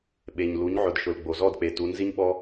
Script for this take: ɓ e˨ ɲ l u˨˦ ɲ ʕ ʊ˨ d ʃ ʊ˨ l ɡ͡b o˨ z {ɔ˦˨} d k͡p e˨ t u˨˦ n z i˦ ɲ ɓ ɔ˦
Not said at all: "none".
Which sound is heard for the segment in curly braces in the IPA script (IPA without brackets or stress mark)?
ɔ˦˨